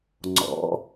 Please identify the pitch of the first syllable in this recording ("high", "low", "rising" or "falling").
rising